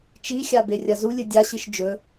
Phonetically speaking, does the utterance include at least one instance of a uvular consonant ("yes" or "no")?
no